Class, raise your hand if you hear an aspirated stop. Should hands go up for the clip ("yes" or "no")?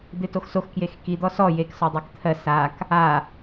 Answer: yes